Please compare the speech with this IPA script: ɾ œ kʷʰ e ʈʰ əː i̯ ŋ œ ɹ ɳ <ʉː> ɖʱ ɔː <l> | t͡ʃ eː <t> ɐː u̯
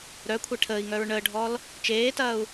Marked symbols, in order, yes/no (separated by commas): no, yes, yes